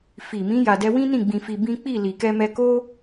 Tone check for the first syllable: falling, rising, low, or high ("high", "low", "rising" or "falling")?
low